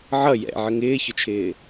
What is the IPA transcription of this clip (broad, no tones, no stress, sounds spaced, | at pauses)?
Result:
ʕ ʌ j ɛ̰ ʕ ə ŋ ɪː ç ʊ t͡ʃʰ ɪː